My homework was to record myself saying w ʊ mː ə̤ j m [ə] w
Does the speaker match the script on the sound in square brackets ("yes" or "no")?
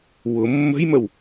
yes